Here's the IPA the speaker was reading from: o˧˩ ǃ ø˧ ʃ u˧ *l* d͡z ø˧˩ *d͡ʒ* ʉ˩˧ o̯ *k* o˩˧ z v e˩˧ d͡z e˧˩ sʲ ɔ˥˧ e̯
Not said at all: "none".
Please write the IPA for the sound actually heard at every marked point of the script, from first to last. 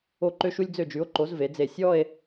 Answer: lʲ, d͡ʒ, ǃ

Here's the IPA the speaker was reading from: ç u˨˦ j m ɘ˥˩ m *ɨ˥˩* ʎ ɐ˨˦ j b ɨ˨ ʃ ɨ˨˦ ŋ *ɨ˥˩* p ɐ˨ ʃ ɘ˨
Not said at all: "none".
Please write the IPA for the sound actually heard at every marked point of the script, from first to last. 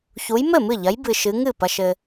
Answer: ɨ˥˩, ɨ˥˩

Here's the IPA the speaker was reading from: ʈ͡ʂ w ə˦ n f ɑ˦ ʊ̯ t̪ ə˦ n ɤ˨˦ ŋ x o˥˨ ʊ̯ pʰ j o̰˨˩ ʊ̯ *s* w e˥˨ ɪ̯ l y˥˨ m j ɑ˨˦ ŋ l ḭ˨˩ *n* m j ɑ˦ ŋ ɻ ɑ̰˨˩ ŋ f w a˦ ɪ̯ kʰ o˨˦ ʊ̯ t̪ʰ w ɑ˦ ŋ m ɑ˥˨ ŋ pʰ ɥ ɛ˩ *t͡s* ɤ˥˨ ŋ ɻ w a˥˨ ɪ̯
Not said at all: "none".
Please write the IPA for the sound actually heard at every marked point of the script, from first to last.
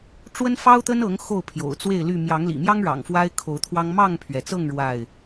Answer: t͡s, none, t͡s

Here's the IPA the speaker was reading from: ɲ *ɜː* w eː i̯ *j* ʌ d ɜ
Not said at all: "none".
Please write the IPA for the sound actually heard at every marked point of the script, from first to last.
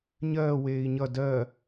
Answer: ɜː, ɲ

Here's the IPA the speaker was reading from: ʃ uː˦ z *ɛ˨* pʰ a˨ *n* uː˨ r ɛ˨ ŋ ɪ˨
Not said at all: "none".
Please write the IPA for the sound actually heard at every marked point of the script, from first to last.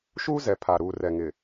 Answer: ɛ˨, ɾ

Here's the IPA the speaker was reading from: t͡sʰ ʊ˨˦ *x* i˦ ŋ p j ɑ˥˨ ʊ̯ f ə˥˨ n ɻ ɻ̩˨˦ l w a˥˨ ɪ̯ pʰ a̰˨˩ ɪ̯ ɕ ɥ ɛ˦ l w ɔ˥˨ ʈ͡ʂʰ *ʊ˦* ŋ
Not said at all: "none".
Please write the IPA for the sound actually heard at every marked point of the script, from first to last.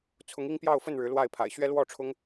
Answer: ŋ, ʊ˦

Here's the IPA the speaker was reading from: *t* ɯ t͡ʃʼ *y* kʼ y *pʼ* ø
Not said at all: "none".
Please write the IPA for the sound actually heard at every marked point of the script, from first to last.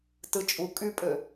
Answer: t, u, pʼ

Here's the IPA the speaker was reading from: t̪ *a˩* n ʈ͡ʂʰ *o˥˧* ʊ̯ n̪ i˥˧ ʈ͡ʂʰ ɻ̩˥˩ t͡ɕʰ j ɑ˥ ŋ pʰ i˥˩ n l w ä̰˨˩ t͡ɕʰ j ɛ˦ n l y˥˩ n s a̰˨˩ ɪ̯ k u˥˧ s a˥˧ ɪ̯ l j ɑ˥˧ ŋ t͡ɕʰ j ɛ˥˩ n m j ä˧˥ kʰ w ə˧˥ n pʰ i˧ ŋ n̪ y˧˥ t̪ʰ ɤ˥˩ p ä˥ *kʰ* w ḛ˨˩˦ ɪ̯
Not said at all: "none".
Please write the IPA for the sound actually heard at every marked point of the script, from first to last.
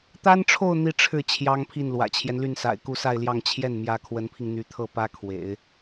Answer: a˥, o˥˧, kʰ

